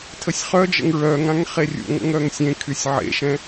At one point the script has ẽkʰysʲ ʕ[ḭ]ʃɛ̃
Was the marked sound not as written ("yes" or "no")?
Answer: yes